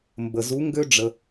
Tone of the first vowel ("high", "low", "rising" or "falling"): low